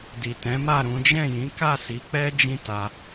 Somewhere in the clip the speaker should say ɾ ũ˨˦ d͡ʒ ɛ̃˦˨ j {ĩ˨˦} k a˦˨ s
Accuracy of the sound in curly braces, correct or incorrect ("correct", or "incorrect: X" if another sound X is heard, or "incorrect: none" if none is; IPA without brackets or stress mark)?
correct